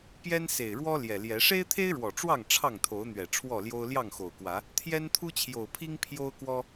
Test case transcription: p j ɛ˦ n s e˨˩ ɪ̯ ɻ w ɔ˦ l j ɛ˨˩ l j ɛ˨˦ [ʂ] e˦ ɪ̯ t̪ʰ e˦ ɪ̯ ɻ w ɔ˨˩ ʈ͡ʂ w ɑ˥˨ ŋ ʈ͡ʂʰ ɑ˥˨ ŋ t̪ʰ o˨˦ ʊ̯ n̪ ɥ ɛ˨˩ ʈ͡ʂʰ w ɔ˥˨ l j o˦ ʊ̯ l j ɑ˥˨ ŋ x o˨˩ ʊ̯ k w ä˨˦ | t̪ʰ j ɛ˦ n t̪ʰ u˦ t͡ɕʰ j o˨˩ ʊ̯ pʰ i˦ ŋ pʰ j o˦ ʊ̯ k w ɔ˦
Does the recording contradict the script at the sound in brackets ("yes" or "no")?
no